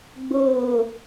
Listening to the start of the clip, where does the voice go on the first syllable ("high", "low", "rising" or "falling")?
low